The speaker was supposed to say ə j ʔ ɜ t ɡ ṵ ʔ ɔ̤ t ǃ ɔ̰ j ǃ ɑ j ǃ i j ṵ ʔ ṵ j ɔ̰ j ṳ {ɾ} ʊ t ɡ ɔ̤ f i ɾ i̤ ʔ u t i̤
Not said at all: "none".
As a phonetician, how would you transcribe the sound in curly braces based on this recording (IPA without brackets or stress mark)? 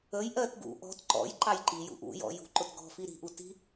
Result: ǃ